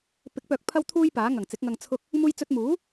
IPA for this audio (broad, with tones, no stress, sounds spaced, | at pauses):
p ɪ˨˥ k̚ p œː˨˥ k̚ pʰ ɐ˥ w t̪ʰ uː˥ j p aː˨˥ ŋ ɐ˨˩ ŋ t͡s ɪ˨˥ k̚ ŋ ɐ˧ ŋ t͡sʰ ʊ˧ k̚ | m uː˧ j t͡s ɵ˧ t̚ m uː˨˥